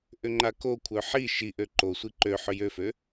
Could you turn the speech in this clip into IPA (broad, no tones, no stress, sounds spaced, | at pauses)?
ʔ ʏ ŋ͡ǃ a k o kʷʰ œ ħ i ʃ i ʔ ø ǃ o sʷ i ǃ ø ħ ʏ j ø f ø